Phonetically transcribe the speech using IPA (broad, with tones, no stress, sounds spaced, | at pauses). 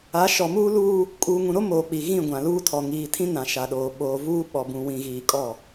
a˨˦ ʃ ɔ˨ m uː˦ l uː˦ | kʼ uː˨ ŋ ũ˨ ɾ o˦ m oː˨ k͡p i˨ ɣ ĩ˦˨ ɡʷ ã˨ l uː˦ tʰ ɔ˨ ŋ iː˨ tʰ ĩ˦ n ã˨ ʃ a˨ ɗ oː˨ ɓ oː˨ v uː˦ ɓ ɔ˨ b ũ˨ w ĩ˨ ɣ iː˨ kʼ ɔ˦˨